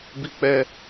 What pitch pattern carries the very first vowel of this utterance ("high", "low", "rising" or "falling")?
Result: high